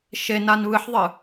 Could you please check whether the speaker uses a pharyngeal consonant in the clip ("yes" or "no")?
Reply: yes